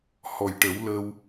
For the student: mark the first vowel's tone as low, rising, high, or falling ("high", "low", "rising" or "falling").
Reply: low